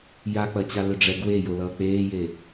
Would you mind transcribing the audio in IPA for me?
j a k͡p ɐ t͡ɕ a l ʏ ɖ͡ʐ ɛ ɡ w e j o l ʌː k͡p eː j e

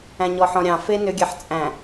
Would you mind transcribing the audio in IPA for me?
æ̃ ɲ ɔ ħ ɔ̃ ɾʲ ɑ̃ f e n ʏ ɡʲ ɛ ħ t͡sʼ æ̃

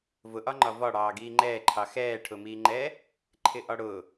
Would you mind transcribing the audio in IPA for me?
v ʊ ʔ ɒ ŋ͡ǃ ɒ v ɒ ɽ ɑː ɡ iː ŋ͡ǃ ɛː ǃʰ ɑ x ɛː ʈʰ ʊ m iː ŋ͡ǃ ɛː | ǃʰ ɪ ʔ ɒ ɽ ʊː

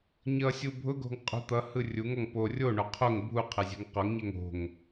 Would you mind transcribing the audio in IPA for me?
ɲ ʌ sʲ u bʱ ʊ ɡ o̤ ŋ qʼ ṳ t̪ ʌ h ɯ rʲ u ŋ ɔ ŋ p o rʲ o ɳ o qʰ o ŋ bʱ u qʰ ɛ zʲ ɛ̤ ŋ q ɔ ŋ ɲ ɛ ŋ o̤ ŋ

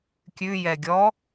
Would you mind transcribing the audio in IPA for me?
kʲ ʉ j ɛ ɡʲ ɔ

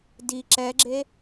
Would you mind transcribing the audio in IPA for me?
d i ǁ ɛ ɡ͡ǁ e

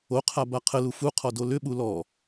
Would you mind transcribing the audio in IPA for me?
o qʰ a b a qʰ ə l u f u qʰ ɔ d o l ʏ ɓ u l ɔ

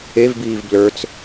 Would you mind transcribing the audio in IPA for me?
e v b iː v b l ə˞ t͡s

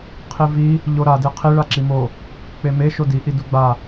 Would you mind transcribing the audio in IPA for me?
qʰ i v i | ʎ o ɾ a d e qʰ i ɭ a ǁ i m o | k͡p e m e ʃ o d i ʔ i d u ɡ͡b a

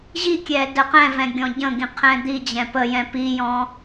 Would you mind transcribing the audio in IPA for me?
ʑ i kʲ ɛ d ə q ɛ̃ v ɛ̃ ɡʲ ɔ̃ ɟ ə̃ ɡ ĩ qʰ ɛ̃ d̪ i d͡ʑ ɛ̃ p ə j ɛ̃ p i j ɔ̃

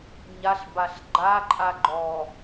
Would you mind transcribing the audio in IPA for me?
ɲ a ɬ b a ɬ ɡ͡ǃ a ǃʼ a ɡ͡ǃ ɔ

